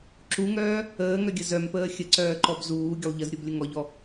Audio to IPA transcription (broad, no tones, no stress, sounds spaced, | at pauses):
ǁ u ŋ œː | əː ŋ œ ɡʲ ə z œ m p əː xʲ ə ǀ œː ǃ ɔ b z uː ɡʲ ə lˠ ʎ ə z ɾʲ u b lʲ ə ŋ ɔ ʎ ɔ